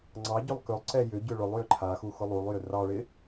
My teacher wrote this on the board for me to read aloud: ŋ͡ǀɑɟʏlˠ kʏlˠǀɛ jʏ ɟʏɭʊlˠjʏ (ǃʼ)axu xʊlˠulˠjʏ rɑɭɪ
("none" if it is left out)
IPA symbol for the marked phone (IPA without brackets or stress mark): ǃʰ